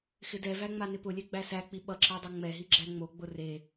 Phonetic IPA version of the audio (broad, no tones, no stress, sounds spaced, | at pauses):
x ɪ d ɛ v æ ŋ͡m a n ɪ p ʊ lʲ ɛ ɡ͡b æ s æ k͡p i ɓ ʌ ǁ a dˤ ʌ ŋ͡m ɛ ɦ i ɡ͡ǁ æ ŋ͡m o ɡ͡b ʊ r e